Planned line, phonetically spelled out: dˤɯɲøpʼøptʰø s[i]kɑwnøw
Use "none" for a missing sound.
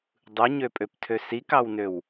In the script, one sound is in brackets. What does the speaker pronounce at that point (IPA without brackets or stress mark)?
i